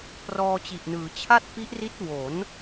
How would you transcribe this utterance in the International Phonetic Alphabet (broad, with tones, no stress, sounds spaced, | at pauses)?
p r ɔː˧ t͡ɕ i˨˩ ʔ n ɯː˩˦ t͡ɕʰ a˥˩ t̚ p i˦˥ ʔ r i˦˥ t̚ w o˩˦ n